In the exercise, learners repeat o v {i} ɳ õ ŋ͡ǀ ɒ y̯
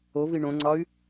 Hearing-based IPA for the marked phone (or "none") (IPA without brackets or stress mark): i